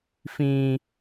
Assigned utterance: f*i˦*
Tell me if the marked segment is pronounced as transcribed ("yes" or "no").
no